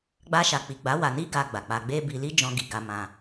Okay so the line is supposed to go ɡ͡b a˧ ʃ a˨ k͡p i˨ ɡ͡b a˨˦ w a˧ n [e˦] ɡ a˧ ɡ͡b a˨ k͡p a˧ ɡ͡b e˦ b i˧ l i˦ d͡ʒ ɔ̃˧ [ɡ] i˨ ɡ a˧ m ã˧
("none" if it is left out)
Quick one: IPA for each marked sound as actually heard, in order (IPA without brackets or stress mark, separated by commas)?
i˦, ɡ